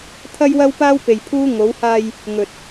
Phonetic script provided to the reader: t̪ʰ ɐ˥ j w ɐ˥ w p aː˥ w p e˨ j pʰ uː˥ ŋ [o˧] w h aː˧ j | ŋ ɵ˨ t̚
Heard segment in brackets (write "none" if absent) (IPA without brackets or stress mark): o˨˧